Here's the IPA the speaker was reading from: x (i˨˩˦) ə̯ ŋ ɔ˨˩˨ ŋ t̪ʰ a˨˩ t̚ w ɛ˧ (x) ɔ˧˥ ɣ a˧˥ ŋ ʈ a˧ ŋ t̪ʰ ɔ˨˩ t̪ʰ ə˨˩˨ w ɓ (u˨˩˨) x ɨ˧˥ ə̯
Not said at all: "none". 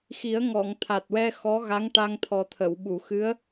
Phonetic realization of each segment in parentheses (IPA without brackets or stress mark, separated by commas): i˨˩˦, x, u˨˩˨